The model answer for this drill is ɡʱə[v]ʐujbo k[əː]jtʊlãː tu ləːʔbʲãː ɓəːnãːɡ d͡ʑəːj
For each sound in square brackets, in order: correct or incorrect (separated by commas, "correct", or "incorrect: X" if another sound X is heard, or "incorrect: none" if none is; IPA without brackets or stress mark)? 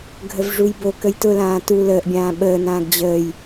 correct, incorrect: ə